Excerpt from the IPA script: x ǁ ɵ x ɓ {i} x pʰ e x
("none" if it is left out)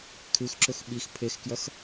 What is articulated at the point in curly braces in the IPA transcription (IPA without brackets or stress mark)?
i